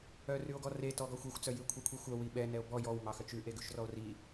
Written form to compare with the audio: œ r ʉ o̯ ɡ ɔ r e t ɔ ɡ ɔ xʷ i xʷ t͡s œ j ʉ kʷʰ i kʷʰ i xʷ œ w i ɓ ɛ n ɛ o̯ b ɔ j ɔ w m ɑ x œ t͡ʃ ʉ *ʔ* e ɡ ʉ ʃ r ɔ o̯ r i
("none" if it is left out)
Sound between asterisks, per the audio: ʔ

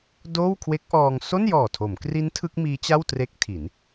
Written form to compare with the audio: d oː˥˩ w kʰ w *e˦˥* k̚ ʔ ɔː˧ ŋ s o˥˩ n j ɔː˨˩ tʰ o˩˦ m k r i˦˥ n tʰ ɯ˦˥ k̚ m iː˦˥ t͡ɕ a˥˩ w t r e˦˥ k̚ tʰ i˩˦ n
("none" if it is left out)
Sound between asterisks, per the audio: e˦˥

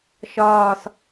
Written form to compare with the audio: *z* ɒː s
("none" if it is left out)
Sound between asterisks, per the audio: ʃ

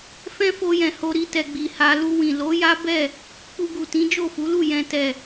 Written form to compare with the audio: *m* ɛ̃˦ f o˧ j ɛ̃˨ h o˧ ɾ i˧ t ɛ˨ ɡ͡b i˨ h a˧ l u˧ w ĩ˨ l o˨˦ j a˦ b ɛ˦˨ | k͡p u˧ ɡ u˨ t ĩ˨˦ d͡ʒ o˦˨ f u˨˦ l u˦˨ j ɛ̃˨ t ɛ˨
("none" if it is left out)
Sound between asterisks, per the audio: f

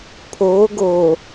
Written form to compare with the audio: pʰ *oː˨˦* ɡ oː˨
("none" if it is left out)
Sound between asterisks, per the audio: oː˨˦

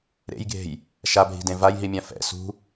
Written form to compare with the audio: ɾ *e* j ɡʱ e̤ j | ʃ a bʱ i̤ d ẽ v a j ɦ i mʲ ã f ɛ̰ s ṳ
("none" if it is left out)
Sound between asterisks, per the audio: ḛ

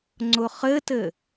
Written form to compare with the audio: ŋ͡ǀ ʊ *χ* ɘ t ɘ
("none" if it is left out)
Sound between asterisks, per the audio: χ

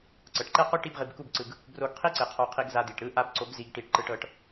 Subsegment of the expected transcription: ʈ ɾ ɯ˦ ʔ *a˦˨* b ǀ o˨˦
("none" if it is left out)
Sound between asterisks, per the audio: a˧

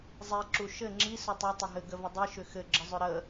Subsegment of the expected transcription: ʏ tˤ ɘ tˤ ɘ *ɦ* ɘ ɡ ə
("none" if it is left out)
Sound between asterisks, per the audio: ɦ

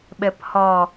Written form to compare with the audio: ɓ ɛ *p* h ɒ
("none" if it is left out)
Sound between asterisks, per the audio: p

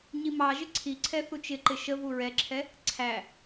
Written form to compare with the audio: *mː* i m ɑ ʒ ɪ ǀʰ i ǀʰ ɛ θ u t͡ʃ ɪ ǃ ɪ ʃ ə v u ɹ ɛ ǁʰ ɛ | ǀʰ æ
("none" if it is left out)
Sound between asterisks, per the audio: ɲ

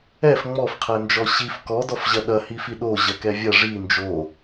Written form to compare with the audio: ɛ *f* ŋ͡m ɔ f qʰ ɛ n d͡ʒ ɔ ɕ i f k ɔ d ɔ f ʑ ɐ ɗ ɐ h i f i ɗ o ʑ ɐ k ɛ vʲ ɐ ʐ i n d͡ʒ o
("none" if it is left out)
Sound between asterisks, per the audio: f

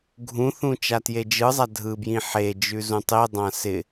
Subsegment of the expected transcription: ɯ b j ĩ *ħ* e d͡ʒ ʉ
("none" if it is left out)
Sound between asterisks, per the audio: ħ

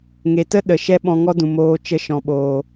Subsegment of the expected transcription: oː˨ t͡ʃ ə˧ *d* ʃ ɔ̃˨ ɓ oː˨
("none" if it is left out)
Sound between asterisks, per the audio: none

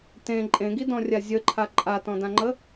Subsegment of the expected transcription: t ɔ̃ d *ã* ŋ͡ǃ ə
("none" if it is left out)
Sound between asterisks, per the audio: ã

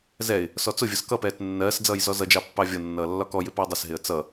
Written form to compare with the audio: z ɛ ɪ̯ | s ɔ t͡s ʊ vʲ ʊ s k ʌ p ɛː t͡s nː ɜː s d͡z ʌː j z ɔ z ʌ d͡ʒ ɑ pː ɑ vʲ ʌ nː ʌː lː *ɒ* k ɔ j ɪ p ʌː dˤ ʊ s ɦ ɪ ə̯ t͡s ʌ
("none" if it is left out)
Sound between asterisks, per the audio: ɒ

